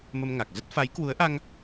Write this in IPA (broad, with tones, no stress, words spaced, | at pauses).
mə˧mŋa˨˩k̚ zə˦˥t̚ fa˨˦jkwu˨˦ə̯ʔa˧ŋ